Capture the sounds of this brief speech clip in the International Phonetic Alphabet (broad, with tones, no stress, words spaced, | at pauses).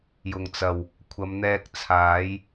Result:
jʊ˨˩ŋt͡sɐ˨˩w | kʷʰɐ˨˧mn̪ɛː˧k̚t͡sʰaː˨˥j